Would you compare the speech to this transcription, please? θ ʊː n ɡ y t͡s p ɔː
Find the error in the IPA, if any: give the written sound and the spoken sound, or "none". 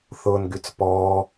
none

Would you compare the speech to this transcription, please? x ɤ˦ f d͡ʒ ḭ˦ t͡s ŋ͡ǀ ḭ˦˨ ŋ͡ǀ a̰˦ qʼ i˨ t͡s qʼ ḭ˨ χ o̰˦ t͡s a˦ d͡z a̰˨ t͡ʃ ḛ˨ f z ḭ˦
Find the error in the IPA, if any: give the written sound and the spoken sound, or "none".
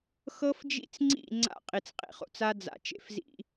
none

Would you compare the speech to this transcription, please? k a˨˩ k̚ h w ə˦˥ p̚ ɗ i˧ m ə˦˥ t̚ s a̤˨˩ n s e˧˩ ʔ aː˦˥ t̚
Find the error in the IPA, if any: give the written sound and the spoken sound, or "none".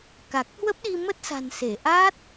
none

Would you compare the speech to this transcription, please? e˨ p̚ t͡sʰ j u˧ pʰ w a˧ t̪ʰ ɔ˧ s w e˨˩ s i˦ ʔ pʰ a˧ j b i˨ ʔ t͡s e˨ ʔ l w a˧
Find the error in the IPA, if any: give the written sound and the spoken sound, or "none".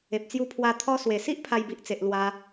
t͡sʰ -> t͡s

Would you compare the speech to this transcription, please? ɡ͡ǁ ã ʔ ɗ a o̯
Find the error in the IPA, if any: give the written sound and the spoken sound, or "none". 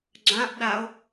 none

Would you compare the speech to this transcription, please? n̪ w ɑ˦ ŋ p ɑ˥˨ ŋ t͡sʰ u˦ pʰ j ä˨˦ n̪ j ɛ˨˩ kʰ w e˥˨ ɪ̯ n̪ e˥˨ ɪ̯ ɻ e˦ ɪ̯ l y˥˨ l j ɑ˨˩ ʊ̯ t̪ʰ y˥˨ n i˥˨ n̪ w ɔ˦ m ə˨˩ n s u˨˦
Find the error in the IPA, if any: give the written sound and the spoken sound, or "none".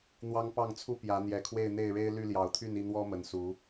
pʰ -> p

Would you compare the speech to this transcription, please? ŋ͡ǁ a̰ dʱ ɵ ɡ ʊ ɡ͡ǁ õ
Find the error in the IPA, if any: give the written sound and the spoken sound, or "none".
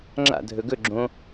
ʊ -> ɵ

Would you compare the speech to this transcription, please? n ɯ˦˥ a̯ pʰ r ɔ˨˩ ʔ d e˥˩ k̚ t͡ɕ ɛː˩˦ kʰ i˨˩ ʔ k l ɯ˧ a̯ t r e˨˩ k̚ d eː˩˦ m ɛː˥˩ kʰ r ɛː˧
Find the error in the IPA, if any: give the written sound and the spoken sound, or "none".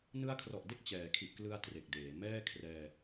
pʰ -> kʰ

